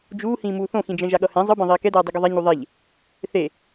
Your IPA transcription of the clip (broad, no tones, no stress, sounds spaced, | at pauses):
d͡ʒ uː h ĩː m uː θ õ x ĩ d͡ʒ ɛ̃ ʒ a ɠ ʌ h ẽ zˤ ɯ b ẽ ðˤ iː k ɛ d ɛː dˤ i ɡ o ðˤ ɛ ɲ u ðˤ e ʎ | θ e